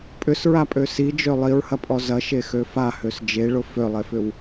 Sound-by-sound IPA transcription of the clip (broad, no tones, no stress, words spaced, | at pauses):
pʼʏsɹapʼø sid͡ʒø lˠiɹhɐpʼɔ zɐʃexø fahøs d͡ʒeɭʊ følˠefʏw